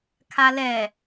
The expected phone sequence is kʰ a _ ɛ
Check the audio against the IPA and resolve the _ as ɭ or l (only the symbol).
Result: l